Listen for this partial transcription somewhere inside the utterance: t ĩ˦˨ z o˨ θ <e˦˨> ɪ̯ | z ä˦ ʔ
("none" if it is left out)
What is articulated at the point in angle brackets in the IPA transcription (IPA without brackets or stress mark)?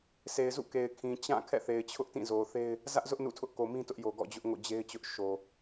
e˦